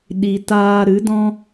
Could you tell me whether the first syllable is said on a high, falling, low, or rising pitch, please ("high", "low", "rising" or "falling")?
low